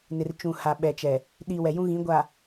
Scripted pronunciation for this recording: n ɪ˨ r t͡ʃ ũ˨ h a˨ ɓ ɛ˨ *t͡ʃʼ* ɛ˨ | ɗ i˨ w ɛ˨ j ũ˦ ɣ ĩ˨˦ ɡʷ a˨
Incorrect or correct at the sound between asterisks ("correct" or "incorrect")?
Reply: incorrect